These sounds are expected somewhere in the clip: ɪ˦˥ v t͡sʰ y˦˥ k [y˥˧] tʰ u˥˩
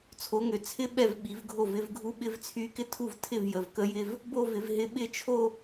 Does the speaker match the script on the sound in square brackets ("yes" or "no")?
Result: no